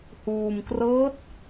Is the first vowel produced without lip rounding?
no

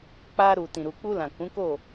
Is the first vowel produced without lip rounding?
yes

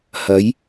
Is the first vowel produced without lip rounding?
yes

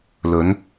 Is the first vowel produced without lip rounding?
no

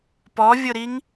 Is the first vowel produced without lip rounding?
no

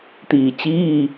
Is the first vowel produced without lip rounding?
yes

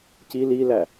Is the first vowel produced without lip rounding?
yes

